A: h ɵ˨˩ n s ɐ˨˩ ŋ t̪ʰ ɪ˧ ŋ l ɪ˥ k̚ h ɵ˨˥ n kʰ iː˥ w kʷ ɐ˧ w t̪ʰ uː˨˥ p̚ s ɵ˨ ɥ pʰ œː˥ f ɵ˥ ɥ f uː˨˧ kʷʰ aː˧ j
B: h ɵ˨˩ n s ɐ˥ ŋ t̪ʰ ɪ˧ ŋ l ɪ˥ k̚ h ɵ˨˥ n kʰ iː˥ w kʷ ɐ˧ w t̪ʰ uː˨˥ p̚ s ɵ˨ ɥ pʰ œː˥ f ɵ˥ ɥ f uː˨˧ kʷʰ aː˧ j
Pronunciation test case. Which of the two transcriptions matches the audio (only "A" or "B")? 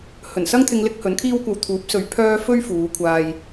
B